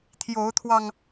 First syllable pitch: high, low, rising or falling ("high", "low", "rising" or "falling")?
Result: rising